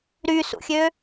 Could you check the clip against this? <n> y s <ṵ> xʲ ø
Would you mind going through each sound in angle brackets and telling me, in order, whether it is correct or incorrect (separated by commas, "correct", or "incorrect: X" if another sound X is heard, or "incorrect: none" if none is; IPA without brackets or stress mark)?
incorrect: ɾ, correct